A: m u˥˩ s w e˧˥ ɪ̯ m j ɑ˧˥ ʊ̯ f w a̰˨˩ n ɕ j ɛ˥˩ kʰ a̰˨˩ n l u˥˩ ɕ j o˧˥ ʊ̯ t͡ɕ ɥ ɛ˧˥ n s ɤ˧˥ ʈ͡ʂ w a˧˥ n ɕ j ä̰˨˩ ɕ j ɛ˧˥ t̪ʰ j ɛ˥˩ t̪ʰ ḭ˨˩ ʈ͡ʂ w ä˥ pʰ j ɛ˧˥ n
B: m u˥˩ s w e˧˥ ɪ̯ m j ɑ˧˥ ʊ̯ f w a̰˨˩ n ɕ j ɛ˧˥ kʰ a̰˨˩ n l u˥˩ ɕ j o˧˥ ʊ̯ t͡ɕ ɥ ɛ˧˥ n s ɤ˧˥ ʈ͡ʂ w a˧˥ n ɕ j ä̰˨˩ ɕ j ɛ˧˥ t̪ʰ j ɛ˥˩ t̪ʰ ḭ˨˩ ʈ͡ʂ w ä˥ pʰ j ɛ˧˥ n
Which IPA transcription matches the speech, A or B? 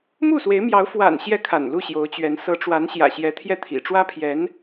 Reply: A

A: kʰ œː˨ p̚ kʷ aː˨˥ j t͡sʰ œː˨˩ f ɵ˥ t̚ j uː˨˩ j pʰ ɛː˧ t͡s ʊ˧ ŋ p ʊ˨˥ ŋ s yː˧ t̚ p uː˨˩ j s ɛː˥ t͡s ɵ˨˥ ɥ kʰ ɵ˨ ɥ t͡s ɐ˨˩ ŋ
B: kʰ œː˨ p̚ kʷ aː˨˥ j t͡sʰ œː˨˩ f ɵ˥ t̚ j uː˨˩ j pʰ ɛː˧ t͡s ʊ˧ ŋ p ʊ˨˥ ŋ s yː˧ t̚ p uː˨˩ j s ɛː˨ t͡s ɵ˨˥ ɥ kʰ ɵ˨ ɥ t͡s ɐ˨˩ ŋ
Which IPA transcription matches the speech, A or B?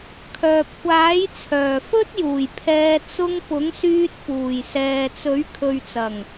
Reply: B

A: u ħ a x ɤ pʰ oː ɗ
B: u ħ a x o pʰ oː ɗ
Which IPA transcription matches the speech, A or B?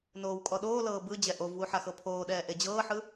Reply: A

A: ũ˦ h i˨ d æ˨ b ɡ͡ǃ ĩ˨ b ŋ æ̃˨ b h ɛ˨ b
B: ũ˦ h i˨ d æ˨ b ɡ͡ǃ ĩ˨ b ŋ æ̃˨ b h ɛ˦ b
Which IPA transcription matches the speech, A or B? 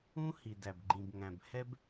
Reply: B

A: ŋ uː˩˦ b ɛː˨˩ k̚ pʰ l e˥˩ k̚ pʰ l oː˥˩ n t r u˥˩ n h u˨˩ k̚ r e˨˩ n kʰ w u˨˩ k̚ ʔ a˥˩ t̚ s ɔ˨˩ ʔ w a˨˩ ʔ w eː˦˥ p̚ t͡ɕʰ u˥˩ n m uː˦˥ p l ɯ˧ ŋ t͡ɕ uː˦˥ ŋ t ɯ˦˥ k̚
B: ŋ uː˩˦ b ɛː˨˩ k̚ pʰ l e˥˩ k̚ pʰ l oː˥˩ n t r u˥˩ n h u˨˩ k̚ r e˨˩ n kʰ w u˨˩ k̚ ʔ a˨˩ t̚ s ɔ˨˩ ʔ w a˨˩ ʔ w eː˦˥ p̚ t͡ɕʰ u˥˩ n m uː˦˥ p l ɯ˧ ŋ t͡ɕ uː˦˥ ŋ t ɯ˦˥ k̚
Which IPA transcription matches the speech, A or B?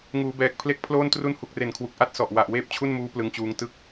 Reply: A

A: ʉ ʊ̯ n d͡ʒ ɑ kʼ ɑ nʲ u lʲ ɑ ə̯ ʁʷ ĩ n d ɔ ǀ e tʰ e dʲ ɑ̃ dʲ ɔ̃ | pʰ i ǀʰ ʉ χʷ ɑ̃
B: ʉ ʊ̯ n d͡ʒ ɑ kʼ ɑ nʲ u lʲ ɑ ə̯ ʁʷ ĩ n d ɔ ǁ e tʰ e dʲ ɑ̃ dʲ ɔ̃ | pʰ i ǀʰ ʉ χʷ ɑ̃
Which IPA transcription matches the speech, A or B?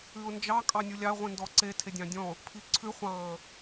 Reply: A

